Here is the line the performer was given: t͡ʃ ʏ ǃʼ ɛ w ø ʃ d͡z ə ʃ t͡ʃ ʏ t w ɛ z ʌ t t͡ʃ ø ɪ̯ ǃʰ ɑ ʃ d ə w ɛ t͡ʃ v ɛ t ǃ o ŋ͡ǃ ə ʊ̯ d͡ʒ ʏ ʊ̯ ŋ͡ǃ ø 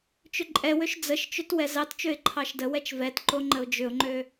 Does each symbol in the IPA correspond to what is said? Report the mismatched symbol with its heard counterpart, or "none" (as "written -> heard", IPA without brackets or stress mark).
ʌ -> ɑ